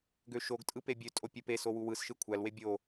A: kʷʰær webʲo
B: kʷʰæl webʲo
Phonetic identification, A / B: B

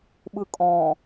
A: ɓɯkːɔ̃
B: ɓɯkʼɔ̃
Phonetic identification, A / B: B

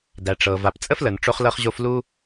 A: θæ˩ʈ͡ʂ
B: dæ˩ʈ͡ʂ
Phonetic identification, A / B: B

